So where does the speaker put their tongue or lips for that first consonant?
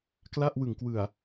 velum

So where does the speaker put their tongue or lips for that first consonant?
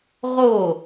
uvula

